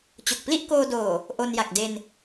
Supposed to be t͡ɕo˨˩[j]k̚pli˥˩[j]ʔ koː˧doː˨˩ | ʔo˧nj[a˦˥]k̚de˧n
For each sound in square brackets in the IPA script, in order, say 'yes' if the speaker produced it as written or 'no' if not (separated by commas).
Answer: no, no, no